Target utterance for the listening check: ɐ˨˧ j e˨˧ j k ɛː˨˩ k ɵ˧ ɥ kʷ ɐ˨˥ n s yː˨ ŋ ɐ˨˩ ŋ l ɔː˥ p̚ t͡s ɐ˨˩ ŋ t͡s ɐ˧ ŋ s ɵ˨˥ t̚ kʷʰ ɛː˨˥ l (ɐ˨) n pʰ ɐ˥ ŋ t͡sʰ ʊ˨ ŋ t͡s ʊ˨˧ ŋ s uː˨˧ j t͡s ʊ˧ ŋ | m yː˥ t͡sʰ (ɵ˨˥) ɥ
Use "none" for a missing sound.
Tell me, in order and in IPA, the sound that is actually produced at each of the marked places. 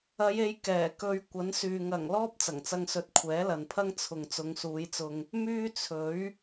ɐ˨, ɵ˨˥

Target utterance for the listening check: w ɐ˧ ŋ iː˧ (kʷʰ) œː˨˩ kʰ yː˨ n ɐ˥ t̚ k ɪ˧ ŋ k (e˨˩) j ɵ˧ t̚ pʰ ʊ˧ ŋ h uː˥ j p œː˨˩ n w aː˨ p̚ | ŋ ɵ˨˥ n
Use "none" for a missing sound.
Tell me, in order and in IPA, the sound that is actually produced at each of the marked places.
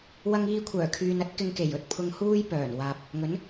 kʷʰ, e˨˩

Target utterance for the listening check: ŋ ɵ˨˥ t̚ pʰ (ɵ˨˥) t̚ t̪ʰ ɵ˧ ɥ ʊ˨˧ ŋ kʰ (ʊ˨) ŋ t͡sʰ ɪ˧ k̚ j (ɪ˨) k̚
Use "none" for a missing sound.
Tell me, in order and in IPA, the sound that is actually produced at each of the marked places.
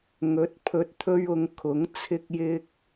ɵ˨˥, ʊ˨˥, ɪ˧

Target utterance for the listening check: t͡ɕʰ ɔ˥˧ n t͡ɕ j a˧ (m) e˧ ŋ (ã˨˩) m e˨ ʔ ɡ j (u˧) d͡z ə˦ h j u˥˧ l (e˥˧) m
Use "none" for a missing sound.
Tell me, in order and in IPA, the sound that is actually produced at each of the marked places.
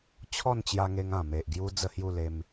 ŋ, ã˨˩, u˧, e˧

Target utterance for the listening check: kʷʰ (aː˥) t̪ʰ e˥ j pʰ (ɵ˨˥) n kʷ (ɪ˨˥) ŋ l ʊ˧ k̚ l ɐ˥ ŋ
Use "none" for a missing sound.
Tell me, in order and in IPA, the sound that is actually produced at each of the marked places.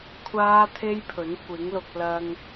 aː˥, ɵ˨˥, ɪ˨˥

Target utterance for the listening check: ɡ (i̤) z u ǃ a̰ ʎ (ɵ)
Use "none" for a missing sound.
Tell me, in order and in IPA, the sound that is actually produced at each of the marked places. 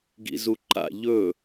ḭ, ɵ

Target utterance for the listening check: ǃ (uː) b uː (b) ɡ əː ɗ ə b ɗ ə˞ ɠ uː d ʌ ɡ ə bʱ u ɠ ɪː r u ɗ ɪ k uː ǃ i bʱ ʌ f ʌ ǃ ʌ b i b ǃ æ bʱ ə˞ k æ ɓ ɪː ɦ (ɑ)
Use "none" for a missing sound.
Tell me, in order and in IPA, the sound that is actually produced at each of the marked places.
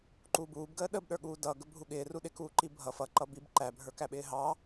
uː, b, ɑ

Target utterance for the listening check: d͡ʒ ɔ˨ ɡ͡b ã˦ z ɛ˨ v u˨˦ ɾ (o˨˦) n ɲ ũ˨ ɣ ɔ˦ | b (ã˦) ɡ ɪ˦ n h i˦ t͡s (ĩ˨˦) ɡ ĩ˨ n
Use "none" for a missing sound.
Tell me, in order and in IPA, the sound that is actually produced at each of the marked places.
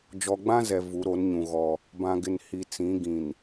o˨˦, ã˦, ĩ˨˦

